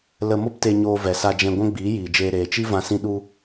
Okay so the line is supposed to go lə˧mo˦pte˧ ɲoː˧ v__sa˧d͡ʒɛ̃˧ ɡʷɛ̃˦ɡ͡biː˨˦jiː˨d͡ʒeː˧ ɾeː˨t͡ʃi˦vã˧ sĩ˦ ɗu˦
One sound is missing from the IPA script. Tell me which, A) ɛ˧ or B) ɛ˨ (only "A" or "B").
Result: B